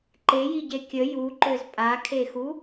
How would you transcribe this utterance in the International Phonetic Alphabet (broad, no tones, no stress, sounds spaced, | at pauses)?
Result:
ǃ e j i ɟ e kʲ ə j u ǃ ø z pʼ a kʰ e x u